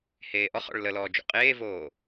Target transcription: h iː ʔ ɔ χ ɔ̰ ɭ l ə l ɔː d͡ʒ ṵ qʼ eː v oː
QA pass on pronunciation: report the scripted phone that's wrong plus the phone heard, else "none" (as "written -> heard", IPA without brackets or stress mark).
iː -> eː